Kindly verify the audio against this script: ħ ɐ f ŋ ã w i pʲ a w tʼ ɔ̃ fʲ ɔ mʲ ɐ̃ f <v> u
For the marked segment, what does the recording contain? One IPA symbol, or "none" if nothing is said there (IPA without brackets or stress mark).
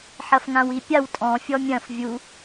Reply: vʲ